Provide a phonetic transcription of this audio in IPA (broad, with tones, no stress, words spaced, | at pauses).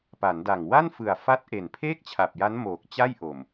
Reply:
pa˩˦nda˨˩ŋ wa˥˩nfɯ˨˩a̯fa˦˥t̚ ʔe˨˩npʰeː˥˩k̚t͡ɕʰa˨˩p̚ja˦˥n moː˨˩k̚ t͡ɕa˥˩jʔo˨˩m